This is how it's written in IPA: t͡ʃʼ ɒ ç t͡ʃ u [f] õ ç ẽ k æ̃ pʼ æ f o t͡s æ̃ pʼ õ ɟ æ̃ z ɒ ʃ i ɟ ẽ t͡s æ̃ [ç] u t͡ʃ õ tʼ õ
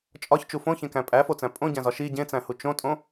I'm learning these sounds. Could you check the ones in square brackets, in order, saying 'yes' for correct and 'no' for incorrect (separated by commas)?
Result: yes, no